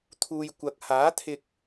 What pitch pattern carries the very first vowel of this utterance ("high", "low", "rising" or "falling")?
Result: low